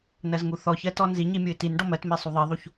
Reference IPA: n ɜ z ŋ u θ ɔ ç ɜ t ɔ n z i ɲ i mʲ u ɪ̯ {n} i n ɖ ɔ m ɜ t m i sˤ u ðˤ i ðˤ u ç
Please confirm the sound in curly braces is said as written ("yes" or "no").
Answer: no